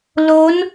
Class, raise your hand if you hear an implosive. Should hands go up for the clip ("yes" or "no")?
no